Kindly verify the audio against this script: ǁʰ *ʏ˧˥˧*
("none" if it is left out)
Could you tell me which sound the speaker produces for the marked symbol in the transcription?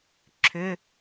ʏ˧˥˧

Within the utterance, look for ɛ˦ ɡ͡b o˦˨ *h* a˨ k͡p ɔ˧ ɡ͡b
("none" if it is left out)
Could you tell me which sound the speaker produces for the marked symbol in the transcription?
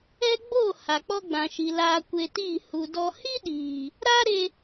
h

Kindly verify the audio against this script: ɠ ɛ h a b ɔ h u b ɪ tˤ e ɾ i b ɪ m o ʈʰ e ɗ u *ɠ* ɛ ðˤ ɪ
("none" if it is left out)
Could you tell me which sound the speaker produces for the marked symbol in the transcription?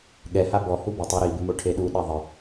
ɗ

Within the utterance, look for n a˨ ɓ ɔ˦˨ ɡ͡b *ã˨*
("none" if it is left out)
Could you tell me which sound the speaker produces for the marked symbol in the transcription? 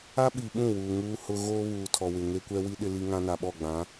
ã˨˦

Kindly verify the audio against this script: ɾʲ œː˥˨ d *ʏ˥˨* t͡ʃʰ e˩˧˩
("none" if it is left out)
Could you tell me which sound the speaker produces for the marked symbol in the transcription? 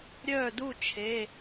u˥˨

